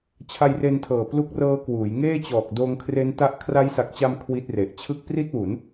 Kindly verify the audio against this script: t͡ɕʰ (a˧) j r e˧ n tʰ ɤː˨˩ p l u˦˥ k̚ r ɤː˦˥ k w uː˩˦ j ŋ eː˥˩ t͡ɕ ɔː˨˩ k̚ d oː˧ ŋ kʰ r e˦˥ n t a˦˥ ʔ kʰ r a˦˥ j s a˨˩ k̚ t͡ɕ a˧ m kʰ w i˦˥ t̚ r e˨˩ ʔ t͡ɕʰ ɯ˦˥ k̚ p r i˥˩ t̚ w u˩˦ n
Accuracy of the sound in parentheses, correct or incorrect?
correct